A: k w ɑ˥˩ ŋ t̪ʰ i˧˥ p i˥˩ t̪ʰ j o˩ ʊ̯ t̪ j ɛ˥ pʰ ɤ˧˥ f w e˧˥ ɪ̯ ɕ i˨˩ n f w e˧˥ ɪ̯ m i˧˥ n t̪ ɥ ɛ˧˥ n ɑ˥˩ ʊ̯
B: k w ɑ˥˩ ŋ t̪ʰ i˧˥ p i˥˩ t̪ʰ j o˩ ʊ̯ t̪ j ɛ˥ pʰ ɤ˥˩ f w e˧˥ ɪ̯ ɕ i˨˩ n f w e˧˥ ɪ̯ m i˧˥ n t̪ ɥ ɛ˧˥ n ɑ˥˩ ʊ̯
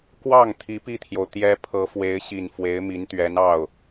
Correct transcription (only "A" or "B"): A